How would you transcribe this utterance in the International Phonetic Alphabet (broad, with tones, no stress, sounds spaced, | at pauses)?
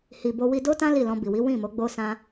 h i˨ b o˧ w i˧ d o˦ t ã˦ l i˦˨ l ɔ̃˧ b i˨ w i˨˦ w ĩ˦˨ m o˨˦ ɡ͡b o˦ s ã˦